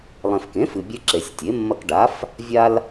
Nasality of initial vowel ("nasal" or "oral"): nasal